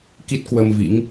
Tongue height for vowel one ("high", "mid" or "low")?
high